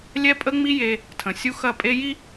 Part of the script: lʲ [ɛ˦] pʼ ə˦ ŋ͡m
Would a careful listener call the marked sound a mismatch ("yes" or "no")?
no